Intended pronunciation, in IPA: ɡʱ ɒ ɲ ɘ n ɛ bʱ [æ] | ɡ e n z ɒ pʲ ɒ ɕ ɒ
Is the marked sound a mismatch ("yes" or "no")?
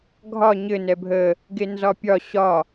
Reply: yes